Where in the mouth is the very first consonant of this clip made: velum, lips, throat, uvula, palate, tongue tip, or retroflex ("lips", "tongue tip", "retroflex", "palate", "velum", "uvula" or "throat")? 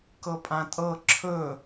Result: velum